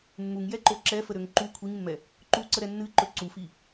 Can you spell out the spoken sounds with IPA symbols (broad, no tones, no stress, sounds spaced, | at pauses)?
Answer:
mː u ŋ j ɛ ǃ o ǁ ɛ f ə ɾ ø ŋ ǃ u kʷʰ i ŋ mː ɛ | ǃ u ǀ ə ɾ ɛ nː ɨ ǃ ɵ ǀ u f i